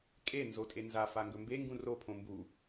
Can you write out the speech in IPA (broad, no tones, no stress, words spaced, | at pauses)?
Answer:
kʼe nzotʼenza faŋɡɵmbe ŋɡũro pʰõmbu